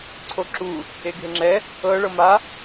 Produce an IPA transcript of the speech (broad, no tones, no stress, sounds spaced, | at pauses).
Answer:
ǀʰ o ǁ u | e ɡʱ e ŋ͡ǁ ɛ | ɤ ɭ ɤ m a